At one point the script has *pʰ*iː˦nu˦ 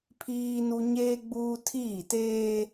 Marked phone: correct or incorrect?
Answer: correct